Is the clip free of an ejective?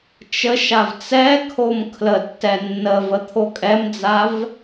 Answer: no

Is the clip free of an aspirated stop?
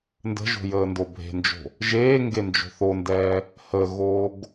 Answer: yes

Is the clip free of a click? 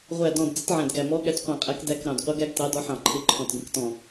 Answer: no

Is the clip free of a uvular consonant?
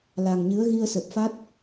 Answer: yes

